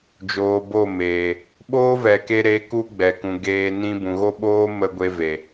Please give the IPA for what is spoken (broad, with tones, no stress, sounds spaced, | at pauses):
d͡ʒ oː˨ b o˦˨ m eː˨ | ɓ oː˦ v ɛ˨ k e˧ ɾ e˨˦ k u˦ ɡ͡b ɛ˨ k ũ˨ ɡ eː˧ n ĩ˧ b ũ˨ ɣ o˦ ɓ oː˦ m ə˧ ɡʷ e˧ v e˨